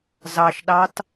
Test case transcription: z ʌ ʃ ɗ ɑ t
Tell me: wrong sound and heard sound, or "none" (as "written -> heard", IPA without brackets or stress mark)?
ʌ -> ɑ